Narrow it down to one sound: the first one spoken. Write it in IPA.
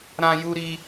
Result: ɾ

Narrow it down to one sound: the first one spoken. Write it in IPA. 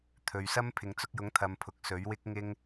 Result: t̪ʰ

